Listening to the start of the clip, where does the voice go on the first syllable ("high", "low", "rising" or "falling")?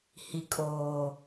low